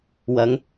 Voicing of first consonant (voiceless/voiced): voiced